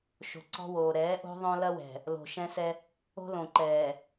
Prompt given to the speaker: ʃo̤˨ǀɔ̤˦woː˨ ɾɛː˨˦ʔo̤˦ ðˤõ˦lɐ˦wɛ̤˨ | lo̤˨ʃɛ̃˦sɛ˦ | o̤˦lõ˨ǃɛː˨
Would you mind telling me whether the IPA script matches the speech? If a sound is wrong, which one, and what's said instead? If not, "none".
none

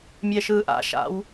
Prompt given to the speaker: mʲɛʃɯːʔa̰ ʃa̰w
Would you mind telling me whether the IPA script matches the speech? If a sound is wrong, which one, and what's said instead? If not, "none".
none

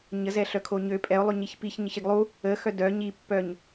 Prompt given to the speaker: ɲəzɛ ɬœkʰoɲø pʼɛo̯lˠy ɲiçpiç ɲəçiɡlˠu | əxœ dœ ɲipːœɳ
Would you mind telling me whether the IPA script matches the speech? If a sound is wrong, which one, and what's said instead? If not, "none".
ɳ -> ɲ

